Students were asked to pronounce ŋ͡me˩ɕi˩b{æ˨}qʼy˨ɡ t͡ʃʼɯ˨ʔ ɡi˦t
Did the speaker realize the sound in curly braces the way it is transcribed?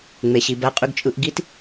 yes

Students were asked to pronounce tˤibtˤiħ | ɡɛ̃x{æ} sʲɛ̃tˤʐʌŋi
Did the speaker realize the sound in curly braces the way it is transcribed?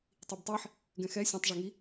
no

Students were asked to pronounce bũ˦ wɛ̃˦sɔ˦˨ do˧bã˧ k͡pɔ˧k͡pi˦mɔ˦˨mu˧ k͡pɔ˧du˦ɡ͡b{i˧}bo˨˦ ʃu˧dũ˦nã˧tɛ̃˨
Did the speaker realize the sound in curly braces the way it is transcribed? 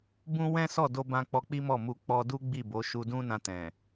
no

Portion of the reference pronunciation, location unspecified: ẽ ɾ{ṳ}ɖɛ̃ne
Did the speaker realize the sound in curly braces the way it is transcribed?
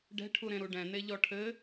no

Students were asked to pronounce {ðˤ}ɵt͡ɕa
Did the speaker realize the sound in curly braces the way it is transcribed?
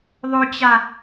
yes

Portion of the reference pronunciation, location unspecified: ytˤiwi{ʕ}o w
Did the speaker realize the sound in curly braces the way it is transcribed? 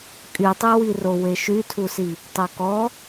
no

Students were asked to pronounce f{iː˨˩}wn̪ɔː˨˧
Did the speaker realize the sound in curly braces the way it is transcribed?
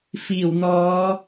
yes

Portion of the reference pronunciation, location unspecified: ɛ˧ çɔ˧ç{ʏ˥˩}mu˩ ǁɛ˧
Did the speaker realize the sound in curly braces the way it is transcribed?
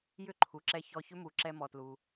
no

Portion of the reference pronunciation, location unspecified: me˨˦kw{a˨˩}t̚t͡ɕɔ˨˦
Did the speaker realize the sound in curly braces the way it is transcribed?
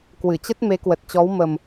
no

